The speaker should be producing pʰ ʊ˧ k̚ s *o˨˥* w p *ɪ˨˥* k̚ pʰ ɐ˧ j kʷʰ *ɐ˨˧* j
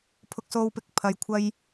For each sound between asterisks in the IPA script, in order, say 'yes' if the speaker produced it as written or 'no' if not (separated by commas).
no, yes, no